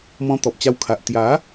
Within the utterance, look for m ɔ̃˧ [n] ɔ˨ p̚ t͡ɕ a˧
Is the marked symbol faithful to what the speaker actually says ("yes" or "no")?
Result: no